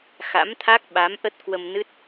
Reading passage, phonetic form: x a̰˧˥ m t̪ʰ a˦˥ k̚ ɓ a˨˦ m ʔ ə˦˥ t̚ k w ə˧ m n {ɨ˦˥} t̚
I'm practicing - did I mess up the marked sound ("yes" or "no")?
no